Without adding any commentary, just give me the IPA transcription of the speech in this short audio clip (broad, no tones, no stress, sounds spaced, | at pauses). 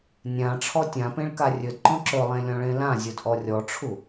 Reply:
nʲ ã ʈ͡ʂʰ ɔ tʲ ã p ẽ ɭ k a rʲ ɵ d ǃ ɔ̃ ǁ ɵ lˠ ẽ lʲ ɔ̃ ɭ ẽ l ã zʲ ɵ d ʔ ɔ rʲ ɔ ʈ͡ʂʰ u